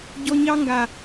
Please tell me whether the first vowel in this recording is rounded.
yes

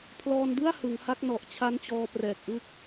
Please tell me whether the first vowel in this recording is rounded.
yes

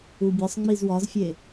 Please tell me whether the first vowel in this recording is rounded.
yes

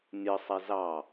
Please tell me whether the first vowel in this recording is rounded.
no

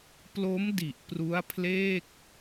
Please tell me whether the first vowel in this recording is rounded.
yes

